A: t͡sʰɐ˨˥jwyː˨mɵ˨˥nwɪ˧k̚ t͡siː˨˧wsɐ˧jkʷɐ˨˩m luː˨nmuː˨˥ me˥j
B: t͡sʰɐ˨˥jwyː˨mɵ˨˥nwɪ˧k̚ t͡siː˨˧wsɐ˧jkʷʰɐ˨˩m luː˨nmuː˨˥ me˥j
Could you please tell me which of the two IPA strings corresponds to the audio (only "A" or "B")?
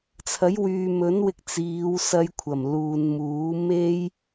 B